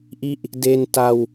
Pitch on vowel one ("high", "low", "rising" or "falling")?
falling